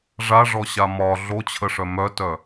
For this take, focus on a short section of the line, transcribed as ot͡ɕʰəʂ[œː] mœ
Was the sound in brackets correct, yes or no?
no